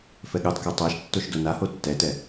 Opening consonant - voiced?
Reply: no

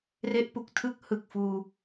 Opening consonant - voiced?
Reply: yes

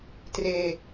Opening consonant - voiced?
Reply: no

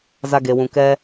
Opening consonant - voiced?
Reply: yes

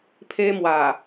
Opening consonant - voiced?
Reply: no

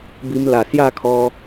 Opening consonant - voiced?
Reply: yes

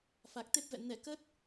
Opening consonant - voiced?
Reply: no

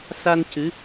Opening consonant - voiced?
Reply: no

